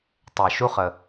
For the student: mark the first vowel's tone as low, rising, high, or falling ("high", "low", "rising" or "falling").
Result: low